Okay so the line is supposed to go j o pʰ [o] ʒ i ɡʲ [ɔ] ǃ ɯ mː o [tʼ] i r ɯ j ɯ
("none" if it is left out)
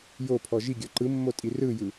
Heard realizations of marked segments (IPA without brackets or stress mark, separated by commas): ɔ, ɔ, tʼ